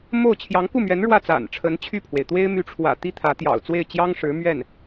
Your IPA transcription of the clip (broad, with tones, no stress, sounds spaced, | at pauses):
m o˥˩ ʊ̯ t͡ɕʰ j ɑ˧˥ ŋ k u˥˩ m ɥ ɛ˧˥ n ɻ w ä˥˩ t͡s a̰˨˩ n ʈ͡ʂʰ ə˧˥ n t͡ɕʰ y˥˩ pʰ w e˩ ɪ̯ t̪ w e˥ ɪ̯ m y˧˥ ʈ͡ʂʰ w ä̰˨˩ t̪ i˥ t̪ʰ ä˧˥ t̪ j ɑ̰˨˩ ʊ̯ t͡s w e˥˩ ɪ̯ t͡ɕ j ɑ˥ ŋ ʂ ɻ̩˧˥ m ɥ ɛ˥˩ n